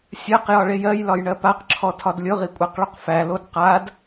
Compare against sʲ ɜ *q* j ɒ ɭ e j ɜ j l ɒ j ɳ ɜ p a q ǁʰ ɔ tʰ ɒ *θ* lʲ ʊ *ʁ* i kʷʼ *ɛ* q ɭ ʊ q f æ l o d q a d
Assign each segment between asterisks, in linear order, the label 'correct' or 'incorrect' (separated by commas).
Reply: correct, incorrect, correct, incorrect